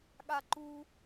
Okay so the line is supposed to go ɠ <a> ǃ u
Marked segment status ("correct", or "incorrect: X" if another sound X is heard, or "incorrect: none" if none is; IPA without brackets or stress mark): correct